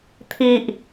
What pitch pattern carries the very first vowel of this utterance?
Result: high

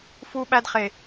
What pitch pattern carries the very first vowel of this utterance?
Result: high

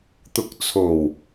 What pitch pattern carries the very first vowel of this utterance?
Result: rising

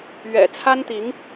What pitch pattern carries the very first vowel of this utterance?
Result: low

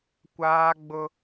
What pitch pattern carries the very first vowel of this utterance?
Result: high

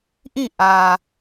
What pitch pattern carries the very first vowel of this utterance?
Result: falling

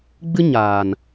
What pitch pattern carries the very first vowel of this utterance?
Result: high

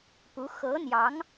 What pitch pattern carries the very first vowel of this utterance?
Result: rising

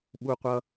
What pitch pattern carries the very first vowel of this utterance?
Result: high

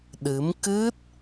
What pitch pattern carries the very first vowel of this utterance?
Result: rising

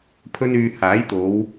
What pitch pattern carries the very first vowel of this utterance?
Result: high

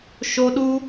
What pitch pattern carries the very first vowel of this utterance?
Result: high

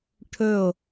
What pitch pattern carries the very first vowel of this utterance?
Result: falling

